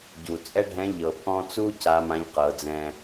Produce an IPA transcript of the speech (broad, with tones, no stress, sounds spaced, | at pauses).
ɟ u˩ t͡sʼ ɛ˥ ɖʱ ɛ̃˧˥ ʎ ɤ˩ pʰ ɔ̃˧ t͡s u˥ c a˧˥ m ã˧˥ ʎ q ɤ˩˧ d͡z ɛ̃˧